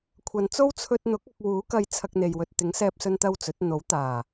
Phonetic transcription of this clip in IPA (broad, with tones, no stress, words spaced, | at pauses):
kʷʰɐ˨nt͡so˥w t͡sʰɵ˧t̚n̪ʊ˨˥k̚ ɐ˧k̚wuː˨˥kɐ˧j t͡sʰɐ˧k̚n̪e˨jwɵ˨t̚ t̪ɪ˨˥ŋsɛː˧p̚sɵ˧nt̪ɐ˧w t͡sɵ˨˥t̚ n̪o˨˥wt̪aː˨˩